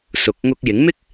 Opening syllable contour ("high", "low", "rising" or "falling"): low